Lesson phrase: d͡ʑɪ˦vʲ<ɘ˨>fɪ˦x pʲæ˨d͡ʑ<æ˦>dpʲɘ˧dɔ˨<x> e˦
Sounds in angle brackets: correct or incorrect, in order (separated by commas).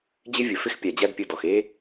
correct, correct, correct